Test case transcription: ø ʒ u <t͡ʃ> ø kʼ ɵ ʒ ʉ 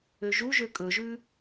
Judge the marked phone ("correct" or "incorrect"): incorrect